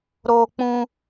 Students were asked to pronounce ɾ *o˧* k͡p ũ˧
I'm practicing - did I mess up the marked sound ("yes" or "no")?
no